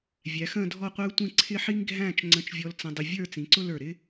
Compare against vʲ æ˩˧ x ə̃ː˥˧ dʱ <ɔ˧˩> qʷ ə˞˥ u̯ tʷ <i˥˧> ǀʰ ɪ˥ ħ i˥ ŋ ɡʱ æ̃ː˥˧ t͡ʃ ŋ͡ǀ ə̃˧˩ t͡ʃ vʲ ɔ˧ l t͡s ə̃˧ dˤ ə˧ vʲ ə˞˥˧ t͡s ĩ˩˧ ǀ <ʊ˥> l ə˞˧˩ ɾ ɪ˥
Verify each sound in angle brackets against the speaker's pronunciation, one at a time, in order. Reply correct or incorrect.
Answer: incorrect, incorrect, correct

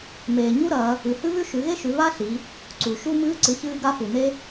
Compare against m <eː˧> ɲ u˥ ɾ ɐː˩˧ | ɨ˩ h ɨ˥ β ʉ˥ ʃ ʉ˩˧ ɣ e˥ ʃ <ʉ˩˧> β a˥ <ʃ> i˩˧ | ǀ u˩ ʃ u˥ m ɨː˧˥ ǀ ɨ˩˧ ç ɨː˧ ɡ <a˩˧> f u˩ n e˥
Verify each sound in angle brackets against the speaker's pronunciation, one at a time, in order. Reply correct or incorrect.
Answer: incorrect, correct, incorrect, incorrect

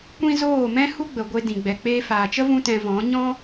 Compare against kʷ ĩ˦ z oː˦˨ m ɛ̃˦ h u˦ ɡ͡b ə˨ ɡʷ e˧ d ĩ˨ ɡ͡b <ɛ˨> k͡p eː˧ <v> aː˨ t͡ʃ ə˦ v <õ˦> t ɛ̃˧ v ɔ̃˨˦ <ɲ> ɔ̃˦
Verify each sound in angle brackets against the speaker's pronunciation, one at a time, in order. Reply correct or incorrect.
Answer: correct, incorrect, incorrect, correct

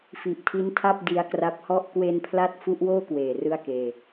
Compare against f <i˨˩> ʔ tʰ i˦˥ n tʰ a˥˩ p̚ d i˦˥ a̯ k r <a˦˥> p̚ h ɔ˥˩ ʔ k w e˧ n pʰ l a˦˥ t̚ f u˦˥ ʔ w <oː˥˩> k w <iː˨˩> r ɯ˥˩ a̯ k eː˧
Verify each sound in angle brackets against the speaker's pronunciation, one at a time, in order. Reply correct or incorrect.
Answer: correct, correct, correct, incorrect

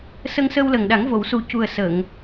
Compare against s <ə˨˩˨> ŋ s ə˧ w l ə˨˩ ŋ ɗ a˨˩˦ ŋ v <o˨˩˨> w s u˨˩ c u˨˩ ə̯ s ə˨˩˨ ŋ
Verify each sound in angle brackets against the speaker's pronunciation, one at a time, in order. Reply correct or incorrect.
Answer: incorrect, correct

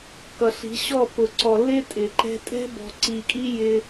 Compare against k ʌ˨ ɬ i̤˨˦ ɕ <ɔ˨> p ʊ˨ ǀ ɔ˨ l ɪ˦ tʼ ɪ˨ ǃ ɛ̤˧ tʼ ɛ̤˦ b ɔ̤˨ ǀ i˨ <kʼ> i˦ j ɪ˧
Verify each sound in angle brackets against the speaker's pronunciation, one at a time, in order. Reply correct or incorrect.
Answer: incorrect, correct

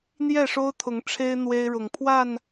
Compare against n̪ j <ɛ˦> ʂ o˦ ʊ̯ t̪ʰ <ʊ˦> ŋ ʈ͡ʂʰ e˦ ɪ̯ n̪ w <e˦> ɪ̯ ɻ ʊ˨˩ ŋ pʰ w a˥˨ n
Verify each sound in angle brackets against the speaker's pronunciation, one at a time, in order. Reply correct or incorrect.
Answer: incorrect, incorrect, correct

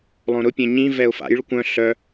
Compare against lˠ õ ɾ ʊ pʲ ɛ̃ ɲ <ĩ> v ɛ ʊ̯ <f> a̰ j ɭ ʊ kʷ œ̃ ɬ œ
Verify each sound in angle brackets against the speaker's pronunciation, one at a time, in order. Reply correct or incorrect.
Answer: correct, correct

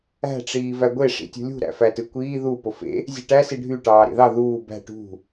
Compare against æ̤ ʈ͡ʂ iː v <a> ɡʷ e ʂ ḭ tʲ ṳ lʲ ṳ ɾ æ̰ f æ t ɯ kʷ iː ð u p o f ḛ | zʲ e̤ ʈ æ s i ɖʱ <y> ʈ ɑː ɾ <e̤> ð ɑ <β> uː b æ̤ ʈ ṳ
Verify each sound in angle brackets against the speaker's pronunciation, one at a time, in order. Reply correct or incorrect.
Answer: incorrect, correct, incorrect, incorrect

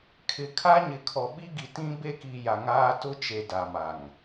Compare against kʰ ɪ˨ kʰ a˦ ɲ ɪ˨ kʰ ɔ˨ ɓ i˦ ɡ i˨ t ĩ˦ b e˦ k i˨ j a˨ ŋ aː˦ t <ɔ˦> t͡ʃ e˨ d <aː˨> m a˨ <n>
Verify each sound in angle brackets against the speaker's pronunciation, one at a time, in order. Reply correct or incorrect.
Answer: incorrect, incorrect, incorrect

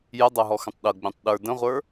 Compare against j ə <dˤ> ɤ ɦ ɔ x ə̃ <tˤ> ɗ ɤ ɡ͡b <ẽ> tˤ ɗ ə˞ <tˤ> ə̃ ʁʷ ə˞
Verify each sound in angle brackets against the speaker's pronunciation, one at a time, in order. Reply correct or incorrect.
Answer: correct, correct, correct, incorrect

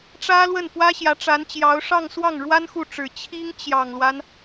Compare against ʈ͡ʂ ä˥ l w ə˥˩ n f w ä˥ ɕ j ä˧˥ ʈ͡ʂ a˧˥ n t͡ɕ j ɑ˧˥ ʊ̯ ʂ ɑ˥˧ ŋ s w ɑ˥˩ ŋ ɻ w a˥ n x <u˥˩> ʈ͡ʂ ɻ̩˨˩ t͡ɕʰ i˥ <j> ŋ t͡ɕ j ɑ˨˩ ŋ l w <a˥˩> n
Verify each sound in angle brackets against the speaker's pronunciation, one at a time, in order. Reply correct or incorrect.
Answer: correct, incorrect, incorrect

